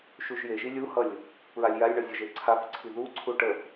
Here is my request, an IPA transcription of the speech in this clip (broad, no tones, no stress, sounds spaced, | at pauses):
ʃ u ʒ j e ʒ i lʲ u h ʌ lʲ | p ɹ a lʲ j a lʲ ɳ ʌ zʲ ʌ ʒ e ǀʰ a f ǀʰ i ð u ǀʰ u ʈ ə f